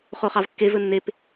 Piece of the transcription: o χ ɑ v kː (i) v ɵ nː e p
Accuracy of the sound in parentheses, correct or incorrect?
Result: incorrect